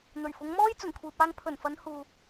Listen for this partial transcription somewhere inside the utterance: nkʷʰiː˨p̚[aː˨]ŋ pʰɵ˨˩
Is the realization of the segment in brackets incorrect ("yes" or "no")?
yes